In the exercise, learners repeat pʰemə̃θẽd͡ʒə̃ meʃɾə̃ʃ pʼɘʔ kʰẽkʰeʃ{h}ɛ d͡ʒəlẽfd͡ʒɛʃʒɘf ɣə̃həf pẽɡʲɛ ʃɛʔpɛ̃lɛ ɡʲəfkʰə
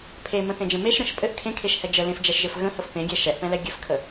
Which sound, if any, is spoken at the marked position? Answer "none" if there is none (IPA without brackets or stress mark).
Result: h